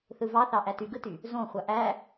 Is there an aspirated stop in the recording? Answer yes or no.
no